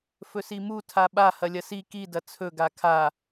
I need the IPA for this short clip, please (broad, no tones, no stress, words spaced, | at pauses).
fɵsimu tʰaɓa hɐlʲɐsi ki dɐt͡sʰɵ ɡakʰa